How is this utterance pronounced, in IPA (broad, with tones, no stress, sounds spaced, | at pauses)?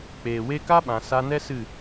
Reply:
k͡p eː˨ w e˦ k a˦ ɓ ã˨ s a˧ n ɛ˦ s ɨ˦˨